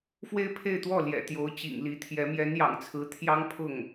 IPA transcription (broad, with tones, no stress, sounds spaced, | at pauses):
f w e˥ ɪ̯ pʰ e˥˧ ɪ̯ t̪ w ɔ˥˩ l j ɛ̰˨˩ t̪ j o˧˥ ʊ̯ t͡ɕ ḭ˨˩ ŋ l i˧˥ t̪ʰ j ɛ˧˥ m j ɛ˧˥ n j ɑ̰˨˩ ŋ t͡sʰ ɹ̩˧˥ t̪ʰ j ɑ˥ ŋ pʰ ʊ˥˩ ŋ